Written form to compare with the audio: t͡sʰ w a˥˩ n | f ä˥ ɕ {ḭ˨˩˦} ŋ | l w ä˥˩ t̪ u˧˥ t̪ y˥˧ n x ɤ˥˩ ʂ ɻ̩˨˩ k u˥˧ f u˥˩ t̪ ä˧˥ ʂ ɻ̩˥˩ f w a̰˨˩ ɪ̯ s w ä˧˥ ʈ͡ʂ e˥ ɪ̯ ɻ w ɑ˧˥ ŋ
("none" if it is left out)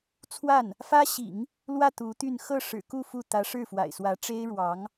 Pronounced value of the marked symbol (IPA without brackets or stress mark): ḭ˨˩˦